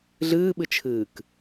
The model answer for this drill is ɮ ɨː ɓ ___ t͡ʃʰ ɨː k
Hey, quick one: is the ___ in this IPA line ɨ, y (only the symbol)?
ɨ